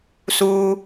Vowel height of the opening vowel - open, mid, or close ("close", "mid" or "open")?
close